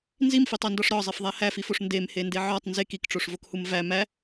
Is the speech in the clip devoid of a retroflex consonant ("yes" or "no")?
no